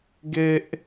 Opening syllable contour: high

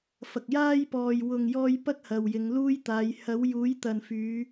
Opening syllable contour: low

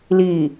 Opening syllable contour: low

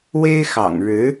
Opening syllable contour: high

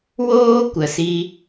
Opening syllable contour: high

